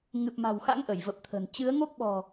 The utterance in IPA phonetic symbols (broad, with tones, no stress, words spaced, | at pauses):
ŋɨ˨˩p̚ma̤˨˩wxa̰˧˥ŋ ʔə˧˩jvə˨˩p̚t̪ʰə̤˨˩n t͡ɕɨ˨˦ə̯ŋo˦˥k̚ɓɔ̤˨˩